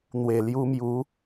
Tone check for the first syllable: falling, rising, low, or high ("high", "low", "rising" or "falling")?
low